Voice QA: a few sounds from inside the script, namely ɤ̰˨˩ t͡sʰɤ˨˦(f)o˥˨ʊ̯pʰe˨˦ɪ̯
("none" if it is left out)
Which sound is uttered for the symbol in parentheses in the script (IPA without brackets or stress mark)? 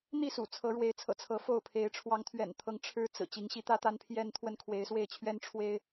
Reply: f